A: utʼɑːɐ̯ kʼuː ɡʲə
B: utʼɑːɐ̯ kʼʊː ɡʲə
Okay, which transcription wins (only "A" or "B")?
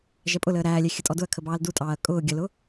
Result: B